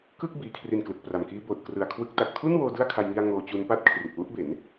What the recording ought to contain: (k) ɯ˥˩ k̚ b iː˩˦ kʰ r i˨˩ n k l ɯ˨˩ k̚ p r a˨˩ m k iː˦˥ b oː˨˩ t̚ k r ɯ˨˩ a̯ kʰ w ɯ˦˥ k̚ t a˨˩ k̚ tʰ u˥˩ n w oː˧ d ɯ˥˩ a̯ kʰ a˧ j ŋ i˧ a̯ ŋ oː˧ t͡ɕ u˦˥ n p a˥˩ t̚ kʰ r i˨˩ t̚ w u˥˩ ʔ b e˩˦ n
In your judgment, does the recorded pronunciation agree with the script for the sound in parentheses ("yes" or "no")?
yes